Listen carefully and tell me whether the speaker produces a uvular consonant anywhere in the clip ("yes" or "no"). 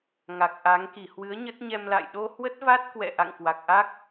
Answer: no